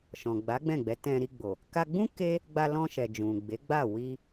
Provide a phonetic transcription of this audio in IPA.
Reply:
ʃ ɔ̃˨ ɡ͡b a˨˦ ɡ͡b ɛ̃˦˨ ɡ͡b ɛ˨˦ t ɛ̃˧ ɾ i˧ ɡ͡b o˨ | k a˧ ɡ͡b ũ˦ k e˦ | ɡ͡b a˧ l ɔ̃˧ ʃ ɛ˨ d͡ʒ ũ˨ ɡ͡b e˨˦ ɡ͡b a˦˨ w i˧

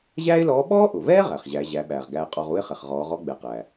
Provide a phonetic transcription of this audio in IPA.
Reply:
ʑ æː˥ ɪ̯ l ɔː˧˥ ɓ ɔː˥ ʔ ʊ˩ v ɛː˥ ʁ æ˩ χ ʑ æ˩˧ ʑ æ˩˧ ɓ æː˩ ʁ ɡ æː˧ qʼ ɔ˧ ʁ u˥ ɪ̯ χ ɛ˩ χ ʁ ɔː˩˧ ʁ ɔ˧˥ ɡ͡b ɛ˩˧ q æ˩

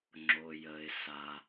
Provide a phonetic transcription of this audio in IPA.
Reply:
ŋ͡ǁ o˩ j əː˩ ɪ̯ s a˩

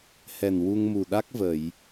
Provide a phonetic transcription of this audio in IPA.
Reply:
h ɛ˨˩ n w u˧ ŋ m u˨˩ ɗ a˦˥ k̚ v ə˨˩˨ j

